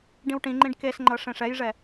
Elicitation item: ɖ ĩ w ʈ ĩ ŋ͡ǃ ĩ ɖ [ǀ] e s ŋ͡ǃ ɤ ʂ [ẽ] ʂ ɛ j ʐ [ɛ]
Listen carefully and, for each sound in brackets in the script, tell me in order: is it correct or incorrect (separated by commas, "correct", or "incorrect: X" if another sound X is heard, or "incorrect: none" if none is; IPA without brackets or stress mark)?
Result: incorrect: k, correct, correct